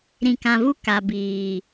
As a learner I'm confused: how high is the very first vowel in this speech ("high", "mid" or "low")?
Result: high